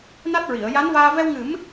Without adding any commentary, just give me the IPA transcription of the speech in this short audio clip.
n a˦˥ t̚ ɹ i˨˩˨ ə̯ j a˧˥ n v aː˧ v ɛ˧ w ŋ ɨ˨˩˦ m

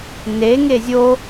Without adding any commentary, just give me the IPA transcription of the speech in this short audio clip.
n e ŋ e zʲ o

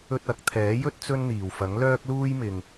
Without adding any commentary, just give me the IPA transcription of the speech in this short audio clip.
ɵ˧ t̚ ɐ˨˥ k̚ t̪ʰ ɛː˨˥ j ɵ˥ t̚ t͡s ɵ˥ n n̪ iː˨˩ w f ɐ˨˥ ŋ l œː˥ k̚ l uː˥ j m ɪ˨ ŋ

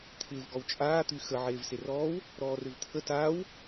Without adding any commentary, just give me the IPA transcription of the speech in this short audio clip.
t̪ʰ ɪː v ɡ ɔ w t͡ʃʼ aː t̪ y x ə ʕ eː v s e r ɔː w | ɾ ɔː r ʏ v t̪ʰ ə t aː w

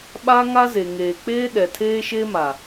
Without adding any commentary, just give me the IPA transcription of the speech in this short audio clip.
ɓ a˦ ŋ a˦ z e˨ ŋ eː˨ k͡p eː˦ ɗ ɛ˨ tʰ eː˦ ʃ e˦ m a˨

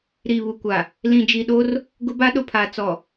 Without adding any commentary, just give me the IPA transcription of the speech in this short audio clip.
ɾ iː˨ β u˨ kʷ a˨ | l ĩ˨ d͡ʒ i˨ ɗ o˦ r | ɡ ʊ˦ b a˦ ɗ ʊ˨ pʰ aː˨ t͡s ɔ˨

